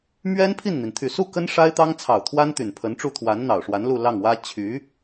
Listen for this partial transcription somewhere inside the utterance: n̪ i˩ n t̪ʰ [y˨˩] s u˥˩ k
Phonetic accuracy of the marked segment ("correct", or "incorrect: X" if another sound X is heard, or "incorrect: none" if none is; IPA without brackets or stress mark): correct